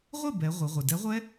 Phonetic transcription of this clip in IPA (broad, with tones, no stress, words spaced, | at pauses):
ʁʷɪ˥˩ bɛ˩˧ ʁʷɪ˩˧ʁʷɪ˩ dɛ˨˥ʁʷɛ˦˥